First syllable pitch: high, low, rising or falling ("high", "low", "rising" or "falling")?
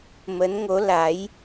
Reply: rising